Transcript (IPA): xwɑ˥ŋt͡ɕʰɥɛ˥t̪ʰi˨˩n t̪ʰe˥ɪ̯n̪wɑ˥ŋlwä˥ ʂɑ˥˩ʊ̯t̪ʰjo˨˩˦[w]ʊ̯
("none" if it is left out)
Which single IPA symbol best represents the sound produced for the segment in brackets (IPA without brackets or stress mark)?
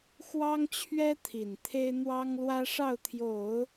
none